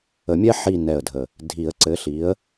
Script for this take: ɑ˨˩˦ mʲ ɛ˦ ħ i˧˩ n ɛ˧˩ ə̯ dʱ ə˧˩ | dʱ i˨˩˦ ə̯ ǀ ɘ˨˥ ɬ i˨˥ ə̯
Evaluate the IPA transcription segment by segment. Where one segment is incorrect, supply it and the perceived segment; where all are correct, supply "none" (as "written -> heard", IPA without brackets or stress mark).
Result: ɑ˨˩˦ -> ə˨˩˦